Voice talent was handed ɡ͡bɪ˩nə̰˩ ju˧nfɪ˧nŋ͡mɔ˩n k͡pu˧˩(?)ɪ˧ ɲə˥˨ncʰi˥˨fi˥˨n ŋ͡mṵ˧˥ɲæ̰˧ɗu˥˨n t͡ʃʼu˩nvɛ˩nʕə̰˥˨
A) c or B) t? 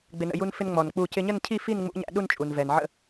A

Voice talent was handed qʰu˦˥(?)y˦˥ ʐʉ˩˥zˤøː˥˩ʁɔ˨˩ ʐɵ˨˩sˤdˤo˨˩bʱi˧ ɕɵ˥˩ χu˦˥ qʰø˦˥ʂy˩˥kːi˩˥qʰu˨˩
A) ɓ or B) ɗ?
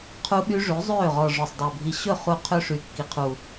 A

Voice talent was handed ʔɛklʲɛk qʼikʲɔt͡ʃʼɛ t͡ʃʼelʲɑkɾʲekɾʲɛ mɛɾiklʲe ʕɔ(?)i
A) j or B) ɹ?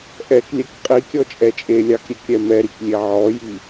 A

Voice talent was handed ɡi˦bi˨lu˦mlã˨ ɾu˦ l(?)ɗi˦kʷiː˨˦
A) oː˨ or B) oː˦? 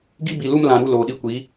A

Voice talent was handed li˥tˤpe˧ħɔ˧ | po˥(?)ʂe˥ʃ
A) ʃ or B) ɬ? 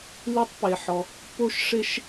A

